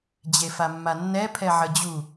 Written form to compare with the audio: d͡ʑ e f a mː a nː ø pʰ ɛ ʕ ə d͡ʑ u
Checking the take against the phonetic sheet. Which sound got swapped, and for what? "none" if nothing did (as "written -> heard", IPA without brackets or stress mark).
ø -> ɛ